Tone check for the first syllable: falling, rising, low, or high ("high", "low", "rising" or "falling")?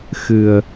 low